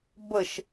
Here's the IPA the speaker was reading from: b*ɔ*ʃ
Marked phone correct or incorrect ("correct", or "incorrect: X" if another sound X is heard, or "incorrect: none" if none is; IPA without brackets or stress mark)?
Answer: incorrect: ə